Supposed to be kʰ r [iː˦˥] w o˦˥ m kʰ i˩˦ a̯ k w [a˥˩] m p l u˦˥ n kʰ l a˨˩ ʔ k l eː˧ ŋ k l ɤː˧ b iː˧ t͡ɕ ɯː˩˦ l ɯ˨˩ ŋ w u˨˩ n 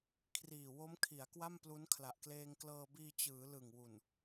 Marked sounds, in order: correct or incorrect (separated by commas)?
incorrect, correct